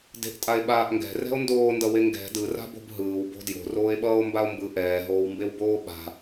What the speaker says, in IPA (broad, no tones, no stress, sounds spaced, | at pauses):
d e̤ ʔ tʼ a e̯ ɓ aː ʔ ŋ ɡ ɛ̤ r ɛ̤ o̯ n d oː n d ʌ w e ŋ ɡ ɛ̤ d ɯ r a̤ b o̤ b ɦ ɯː w b o̤ d j o̤ r oː e̯ ɓ ʌː o̯ m b a o̯ m b ɯ ʔ ɛː ɦ oː w m b e w b oː ɓ a̤